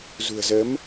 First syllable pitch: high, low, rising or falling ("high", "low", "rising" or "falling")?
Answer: low